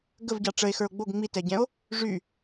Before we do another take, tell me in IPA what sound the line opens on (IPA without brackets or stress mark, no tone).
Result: ɡ